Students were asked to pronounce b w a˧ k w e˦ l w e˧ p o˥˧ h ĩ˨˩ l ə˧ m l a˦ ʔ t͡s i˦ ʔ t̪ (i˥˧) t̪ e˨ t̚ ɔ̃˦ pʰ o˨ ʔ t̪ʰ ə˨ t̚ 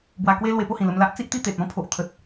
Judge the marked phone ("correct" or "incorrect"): correct